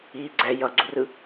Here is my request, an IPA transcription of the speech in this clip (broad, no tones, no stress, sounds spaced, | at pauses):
iː ɡ͡ǀ ɛ j ʌ ɡ͡ǀ u r ɯ